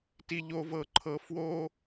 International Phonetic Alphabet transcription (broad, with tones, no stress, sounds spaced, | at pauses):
t i˨ ʎ o˨ v ɤ˨ ǃʰ ɤ˨ f w o˦